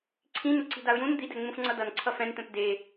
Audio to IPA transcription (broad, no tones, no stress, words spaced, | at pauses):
ǀʰĩnu ǀi̤daʊ̯jũn d̪idɛ ŋ͡mũfŋ͡ǀʌdʌn ǀʰʌfɛ̃nt̪ɛ̃p de